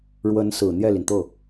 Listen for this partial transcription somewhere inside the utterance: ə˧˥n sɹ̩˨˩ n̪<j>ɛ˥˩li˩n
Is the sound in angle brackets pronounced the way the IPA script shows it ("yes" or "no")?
yes